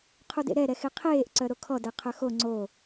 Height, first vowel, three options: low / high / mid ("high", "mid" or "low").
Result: high